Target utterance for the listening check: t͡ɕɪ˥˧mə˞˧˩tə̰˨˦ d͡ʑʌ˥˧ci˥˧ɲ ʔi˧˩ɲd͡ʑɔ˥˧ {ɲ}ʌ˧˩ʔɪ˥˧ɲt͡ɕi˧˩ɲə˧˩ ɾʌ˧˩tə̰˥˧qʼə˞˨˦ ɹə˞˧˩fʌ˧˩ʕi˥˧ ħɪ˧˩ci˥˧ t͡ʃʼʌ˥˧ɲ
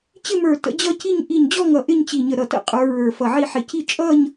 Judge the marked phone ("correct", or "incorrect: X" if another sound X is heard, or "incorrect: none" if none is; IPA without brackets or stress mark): incorrect: ŋ